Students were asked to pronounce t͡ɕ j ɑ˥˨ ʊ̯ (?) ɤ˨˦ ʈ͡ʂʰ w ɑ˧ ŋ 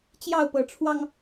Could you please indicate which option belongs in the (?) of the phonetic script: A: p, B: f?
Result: A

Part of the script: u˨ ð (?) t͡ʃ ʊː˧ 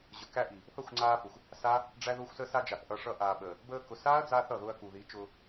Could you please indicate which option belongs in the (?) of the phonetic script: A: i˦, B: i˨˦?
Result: B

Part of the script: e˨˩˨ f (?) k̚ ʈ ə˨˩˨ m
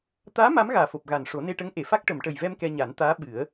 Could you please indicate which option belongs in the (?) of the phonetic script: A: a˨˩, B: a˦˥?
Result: B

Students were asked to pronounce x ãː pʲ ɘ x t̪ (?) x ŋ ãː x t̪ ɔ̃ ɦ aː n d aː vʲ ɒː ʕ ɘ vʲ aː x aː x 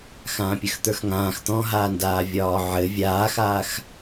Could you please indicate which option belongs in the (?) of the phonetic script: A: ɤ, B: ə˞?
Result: B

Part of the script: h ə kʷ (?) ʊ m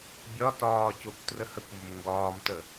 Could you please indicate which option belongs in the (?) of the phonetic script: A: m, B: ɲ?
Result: A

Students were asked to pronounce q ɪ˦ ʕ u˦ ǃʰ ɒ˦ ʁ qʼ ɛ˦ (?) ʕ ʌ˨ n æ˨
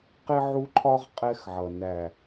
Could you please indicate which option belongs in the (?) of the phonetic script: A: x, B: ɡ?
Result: A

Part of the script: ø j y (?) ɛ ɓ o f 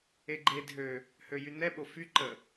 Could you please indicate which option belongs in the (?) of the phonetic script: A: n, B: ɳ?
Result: A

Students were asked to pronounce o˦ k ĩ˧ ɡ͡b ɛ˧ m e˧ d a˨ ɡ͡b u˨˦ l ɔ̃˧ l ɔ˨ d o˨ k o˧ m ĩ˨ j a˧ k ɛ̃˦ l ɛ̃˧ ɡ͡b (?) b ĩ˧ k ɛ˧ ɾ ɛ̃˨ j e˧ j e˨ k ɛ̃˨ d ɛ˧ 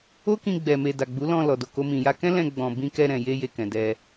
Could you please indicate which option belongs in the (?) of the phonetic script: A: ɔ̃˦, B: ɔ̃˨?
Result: B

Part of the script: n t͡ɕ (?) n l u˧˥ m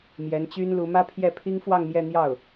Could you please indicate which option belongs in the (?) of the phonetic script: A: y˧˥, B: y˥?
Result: B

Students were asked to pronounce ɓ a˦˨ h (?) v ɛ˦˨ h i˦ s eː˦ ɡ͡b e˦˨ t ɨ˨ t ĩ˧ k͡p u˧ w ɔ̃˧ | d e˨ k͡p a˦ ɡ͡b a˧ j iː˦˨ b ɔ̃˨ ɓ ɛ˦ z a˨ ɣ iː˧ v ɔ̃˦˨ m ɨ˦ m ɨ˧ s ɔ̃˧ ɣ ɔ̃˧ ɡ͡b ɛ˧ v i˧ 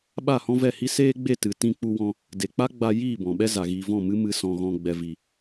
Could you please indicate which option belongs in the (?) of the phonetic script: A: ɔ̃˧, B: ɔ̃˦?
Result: B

